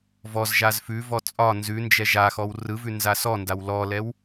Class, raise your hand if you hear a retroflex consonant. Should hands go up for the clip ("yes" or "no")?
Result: no